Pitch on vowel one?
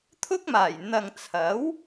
high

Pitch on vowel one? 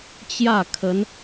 falling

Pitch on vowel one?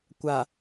low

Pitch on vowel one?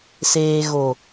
low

